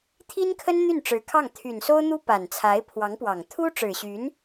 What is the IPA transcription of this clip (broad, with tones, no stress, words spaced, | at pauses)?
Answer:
t̪ʰi˥nkʰə˥n n̪y˥˩nʈ͡ʂɻ̩˧˥kʰɑ˥˩ŋ t̪ʰy˨˩nso˥ʊ̯n̪u˥ pa˨˩nt͡sʰa˧˥ɪ̯pʰwɑ˧˥ŋpwɑ˨˩ŋ t̪ʰu˥ʈ͡ʂɻ̩˨˩ɕy˧˥n